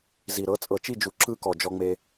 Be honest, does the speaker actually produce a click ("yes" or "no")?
yes